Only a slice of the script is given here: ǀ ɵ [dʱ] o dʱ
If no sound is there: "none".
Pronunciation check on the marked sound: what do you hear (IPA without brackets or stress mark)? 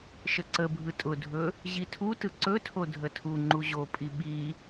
tʰ